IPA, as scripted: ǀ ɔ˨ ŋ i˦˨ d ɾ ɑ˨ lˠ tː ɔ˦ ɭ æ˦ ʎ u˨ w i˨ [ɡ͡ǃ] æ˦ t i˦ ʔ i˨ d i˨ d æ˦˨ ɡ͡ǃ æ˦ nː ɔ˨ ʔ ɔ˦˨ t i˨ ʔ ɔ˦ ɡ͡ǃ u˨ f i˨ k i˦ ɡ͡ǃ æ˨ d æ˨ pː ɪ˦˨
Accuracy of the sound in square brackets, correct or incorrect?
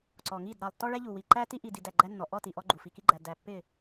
incorrect